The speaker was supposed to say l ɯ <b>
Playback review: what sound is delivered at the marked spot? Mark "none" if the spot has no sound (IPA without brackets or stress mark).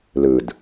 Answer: d